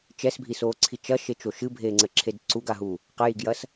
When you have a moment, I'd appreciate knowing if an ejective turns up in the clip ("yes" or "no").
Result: no